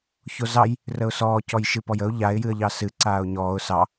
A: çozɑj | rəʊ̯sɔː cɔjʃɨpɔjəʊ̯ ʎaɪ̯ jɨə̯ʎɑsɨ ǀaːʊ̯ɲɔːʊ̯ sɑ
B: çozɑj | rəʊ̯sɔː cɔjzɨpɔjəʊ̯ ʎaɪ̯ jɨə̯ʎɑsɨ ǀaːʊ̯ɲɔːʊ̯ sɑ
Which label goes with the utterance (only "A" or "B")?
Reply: A